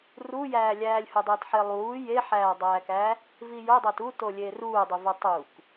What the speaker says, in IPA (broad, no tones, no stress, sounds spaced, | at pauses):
r u j æː lʲ æː lʲ h u dˤ ɯː t ħ e lˠ uː j e ħ æː dˤ æː k æ | v i j o dˤ o t u t o lʲ eː r uː dˤ i v o tˤ u k